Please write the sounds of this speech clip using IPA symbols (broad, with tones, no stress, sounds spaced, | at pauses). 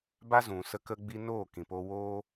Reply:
b a˦ z ũ˨ s ə˧ k ə˧ ɡ͡b i˧ n oː˦˨ k ĩ˨ p o˧ w oː˦